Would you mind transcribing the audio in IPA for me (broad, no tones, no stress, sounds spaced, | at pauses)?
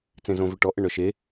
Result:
t͡s ẽ z õ v ø ʈ ɔ ʔ ə ɳ œ ʃ e